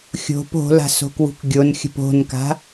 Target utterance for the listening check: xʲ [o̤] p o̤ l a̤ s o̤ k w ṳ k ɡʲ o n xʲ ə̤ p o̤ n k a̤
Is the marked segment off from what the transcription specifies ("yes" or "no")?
no